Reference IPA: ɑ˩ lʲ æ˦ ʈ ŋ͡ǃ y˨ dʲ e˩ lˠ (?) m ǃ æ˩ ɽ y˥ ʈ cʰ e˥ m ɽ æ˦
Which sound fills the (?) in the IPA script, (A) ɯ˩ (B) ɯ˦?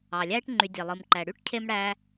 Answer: A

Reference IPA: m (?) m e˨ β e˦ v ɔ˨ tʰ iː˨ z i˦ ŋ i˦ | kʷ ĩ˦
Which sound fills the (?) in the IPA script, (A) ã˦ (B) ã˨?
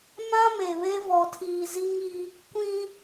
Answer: A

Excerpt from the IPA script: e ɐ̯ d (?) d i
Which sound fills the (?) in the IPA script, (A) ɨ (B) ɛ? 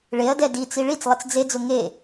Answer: B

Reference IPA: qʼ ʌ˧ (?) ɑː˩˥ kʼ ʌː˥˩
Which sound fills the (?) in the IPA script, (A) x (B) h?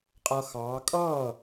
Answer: A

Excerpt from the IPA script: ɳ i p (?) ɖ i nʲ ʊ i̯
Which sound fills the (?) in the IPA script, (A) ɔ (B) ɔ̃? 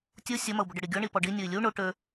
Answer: A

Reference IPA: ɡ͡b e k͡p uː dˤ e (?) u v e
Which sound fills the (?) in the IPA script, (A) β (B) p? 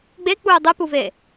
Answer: B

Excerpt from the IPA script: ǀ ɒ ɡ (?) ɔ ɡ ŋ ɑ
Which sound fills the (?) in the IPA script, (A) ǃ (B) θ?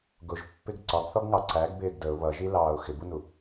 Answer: B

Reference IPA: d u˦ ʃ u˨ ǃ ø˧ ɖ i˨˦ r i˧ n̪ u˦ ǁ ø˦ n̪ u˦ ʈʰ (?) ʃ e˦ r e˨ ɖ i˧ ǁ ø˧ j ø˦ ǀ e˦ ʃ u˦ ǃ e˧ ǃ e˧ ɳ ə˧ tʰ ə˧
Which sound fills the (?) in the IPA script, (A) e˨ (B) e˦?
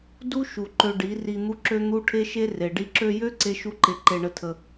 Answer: B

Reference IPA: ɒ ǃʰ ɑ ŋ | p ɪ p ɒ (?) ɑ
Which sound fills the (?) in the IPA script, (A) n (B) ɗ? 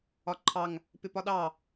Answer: B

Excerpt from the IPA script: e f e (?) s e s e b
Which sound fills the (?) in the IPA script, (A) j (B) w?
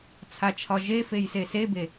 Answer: A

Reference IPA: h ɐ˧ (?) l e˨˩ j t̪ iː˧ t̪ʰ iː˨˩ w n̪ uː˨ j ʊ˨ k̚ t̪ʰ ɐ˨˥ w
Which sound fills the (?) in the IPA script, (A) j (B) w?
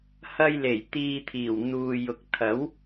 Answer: A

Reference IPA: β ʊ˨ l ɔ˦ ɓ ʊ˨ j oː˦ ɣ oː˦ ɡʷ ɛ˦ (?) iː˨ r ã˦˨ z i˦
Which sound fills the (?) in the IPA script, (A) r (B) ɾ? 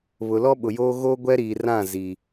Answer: B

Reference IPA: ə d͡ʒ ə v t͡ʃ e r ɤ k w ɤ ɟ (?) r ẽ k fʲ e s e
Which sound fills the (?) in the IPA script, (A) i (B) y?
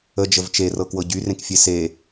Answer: B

